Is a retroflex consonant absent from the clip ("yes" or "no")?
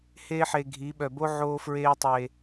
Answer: yes